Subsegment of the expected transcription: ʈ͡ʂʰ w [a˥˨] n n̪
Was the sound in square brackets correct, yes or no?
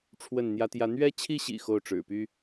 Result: no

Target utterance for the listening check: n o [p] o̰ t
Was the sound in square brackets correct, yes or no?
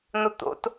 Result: no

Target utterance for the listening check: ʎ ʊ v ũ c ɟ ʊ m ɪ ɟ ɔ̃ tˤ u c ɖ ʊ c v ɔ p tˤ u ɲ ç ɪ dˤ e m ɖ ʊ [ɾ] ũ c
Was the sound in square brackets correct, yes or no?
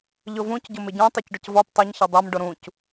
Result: yes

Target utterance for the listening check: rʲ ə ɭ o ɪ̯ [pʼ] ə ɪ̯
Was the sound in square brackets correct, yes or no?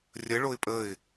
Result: yes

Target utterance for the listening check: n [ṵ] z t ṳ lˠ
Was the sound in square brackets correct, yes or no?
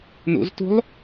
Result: yes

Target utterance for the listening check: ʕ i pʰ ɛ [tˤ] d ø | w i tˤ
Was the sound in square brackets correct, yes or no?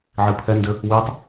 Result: no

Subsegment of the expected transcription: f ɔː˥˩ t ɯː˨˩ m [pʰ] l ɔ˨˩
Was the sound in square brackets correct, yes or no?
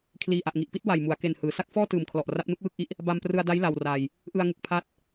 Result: no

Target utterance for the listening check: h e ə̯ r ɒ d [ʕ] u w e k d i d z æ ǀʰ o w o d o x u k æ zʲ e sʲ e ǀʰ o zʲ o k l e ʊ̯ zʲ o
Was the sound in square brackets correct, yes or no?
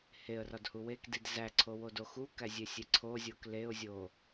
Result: no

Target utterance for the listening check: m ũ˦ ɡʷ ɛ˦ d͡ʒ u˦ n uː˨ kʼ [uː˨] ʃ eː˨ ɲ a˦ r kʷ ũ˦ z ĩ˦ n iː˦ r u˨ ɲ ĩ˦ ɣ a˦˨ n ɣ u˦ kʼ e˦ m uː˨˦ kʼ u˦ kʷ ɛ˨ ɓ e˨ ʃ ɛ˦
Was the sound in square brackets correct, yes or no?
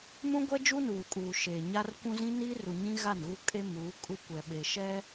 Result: yes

